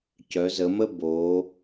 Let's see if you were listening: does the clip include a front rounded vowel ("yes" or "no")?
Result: yes